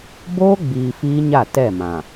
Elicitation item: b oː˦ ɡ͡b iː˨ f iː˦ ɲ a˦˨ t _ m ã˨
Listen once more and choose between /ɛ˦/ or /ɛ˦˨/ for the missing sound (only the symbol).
ɛ˦˨